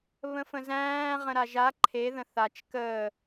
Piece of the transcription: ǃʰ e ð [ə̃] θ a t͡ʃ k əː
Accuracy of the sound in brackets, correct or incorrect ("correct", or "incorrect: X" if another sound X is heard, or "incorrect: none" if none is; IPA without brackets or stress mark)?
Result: correct